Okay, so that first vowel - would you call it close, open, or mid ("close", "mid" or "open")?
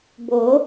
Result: mid